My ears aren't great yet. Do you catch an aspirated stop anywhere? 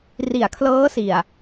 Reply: yes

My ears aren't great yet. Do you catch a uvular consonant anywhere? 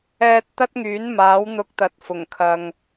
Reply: no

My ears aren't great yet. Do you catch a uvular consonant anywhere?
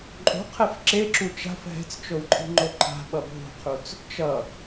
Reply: yes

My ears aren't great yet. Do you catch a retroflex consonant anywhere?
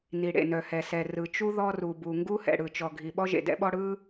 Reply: yes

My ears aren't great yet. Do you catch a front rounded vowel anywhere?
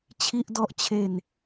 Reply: no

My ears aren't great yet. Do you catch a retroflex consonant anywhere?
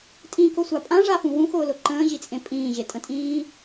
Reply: yes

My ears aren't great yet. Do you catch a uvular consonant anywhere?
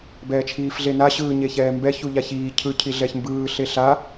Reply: no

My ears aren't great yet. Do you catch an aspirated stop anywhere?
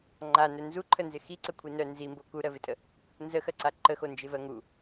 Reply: yes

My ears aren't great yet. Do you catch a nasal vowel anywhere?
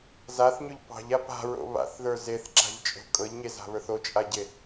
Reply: no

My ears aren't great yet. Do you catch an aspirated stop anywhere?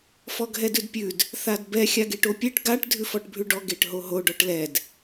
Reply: no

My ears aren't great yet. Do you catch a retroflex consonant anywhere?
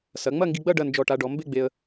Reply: yes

